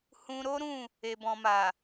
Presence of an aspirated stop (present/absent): absent